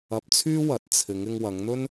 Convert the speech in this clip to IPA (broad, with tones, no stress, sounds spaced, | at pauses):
ɐ˧ p̚ t͡sʰ yː˥ w ɐ˨˥ t̚ t͡sʰ ɪ˨˧ ŋ ɪ˧ ŋ w ɐ˨˧ ŋ n̪ ɵ˥ n